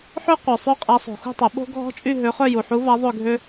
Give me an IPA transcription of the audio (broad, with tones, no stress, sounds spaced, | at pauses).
ħ ø˥ qʷ œ˨ sˤ ø˥˧ qʼ a˧˥ sˤ o̤˨ x ṳ˥˧ tˤ ʊ˨˩˦ ɓ o̤˥ ɡʱ ɔ̤˥ t͡ʃʼ y˥˧ ɦ ø˧˥ χ œ˥˧ j u˨ ħ u˧˥ v a˧˥ ðˤ ø˥˧ ɡʱ ø˥